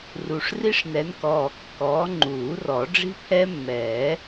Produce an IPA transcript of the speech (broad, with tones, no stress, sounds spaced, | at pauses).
r u˨˩ ʂ r i˦˥ ʂ n ɛ˨˦ n k ɔː˨˩ kː ɔː˨˦ ŋ͡ǃ uː˨˩˦ r ɔ˨˩˦ ɖ͡ʐ i̤˦˥ pʰ ɛ˦˥ mː ɛː˨˩˦